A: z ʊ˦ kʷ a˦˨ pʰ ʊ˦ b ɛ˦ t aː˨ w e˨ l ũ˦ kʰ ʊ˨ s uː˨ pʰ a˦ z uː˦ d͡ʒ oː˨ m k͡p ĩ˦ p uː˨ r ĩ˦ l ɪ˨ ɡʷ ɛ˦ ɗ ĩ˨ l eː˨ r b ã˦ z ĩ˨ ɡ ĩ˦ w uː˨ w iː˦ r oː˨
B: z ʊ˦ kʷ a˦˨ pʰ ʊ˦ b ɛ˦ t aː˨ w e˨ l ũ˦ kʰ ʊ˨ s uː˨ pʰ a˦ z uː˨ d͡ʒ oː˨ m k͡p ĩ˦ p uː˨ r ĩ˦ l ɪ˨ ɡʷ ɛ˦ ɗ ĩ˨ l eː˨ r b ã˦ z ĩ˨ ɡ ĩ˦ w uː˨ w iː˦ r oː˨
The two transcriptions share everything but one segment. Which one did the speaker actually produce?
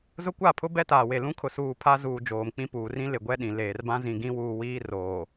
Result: B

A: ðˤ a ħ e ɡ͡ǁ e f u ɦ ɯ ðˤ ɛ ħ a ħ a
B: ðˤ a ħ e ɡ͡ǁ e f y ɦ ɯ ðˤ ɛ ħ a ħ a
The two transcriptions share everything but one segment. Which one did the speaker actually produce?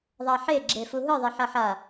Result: A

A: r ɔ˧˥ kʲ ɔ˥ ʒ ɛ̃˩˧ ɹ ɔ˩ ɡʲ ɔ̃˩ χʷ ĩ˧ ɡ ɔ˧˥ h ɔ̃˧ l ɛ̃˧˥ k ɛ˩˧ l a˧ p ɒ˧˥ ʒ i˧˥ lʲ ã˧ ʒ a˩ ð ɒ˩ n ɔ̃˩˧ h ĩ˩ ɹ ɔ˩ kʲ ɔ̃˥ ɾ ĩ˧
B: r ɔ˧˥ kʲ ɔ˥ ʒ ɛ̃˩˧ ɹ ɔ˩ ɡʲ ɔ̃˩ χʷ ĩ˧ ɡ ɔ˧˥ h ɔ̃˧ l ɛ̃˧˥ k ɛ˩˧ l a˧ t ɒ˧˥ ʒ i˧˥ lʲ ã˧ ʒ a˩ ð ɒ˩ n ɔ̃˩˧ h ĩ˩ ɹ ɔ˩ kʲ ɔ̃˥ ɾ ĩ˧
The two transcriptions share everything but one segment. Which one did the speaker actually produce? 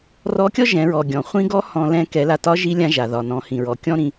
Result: B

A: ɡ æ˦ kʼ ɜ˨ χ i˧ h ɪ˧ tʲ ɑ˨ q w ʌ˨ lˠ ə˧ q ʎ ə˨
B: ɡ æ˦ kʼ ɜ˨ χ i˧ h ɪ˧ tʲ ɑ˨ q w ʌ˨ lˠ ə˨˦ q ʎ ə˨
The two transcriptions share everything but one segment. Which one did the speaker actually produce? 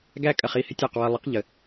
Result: B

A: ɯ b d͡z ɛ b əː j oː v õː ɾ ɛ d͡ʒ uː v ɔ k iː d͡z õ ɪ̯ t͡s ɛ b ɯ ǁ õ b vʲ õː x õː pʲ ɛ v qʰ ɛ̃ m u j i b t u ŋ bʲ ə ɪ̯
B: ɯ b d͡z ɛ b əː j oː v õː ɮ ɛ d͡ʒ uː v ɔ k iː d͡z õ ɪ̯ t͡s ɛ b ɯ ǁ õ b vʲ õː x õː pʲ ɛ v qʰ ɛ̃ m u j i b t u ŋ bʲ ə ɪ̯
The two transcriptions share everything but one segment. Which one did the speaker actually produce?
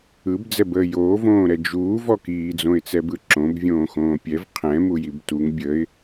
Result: A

